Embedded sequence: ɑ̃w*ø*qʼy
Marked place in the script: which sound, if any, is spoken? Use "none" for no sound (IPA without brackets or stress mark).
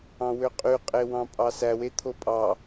ø